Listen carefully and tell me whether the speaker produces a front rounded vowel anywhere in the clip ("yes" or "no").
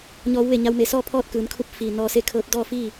no